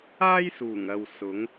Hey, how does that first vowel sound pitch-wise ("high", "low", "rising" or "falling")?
high